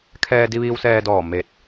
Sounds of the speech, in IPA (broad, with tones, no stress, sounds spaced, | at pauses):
kʰ ɛː˧ d i˧ ʋ iː˧ w s ɛː˧ d ɔː˧˩ m e˧˩ t̚